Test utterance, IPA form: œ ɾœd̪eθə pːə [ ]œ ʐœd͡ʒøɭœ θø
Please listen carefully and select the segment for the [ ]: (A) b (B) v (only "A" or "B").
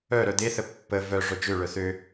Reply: B